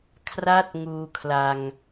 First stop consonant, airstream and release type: aspirated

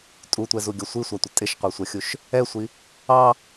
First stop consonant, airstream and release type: ejective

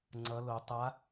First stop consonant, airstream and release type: click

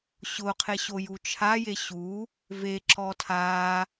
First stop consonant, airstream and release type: aspirated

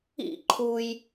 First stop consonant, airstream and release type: click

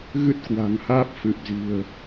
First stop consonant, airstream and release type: plain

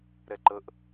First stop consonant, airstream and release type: click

